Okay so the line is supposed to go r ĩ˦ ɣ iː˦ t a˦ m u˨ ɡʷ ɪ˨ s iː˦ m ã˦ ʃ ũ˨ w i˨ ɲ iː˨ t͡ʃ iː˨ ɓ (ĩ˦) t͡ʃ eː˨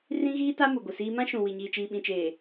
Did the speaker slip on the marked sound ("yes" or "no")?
yes